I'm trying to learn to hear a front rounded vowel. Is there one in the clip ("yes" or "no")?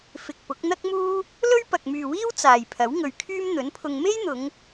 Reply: yes